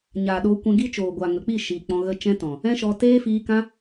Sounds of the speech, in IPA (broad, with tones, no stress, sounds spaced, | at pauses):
ɲ aː˨ ɗ oː˧ kʷ ɛ̃˧ ɡ i˦ t͡ʃ oː˨ ɡʷ aː˨ ŋ ə˨ k͡p i˦˨ ʃ iː˨ k͡p ɔ̃˧ ɣ ə˦ t͡ʃ ɛ̃˦ t ɔ̃˨ | ɛ̃˦ ʃ ɔ˧ t eː˦ f iː˧ k ã˦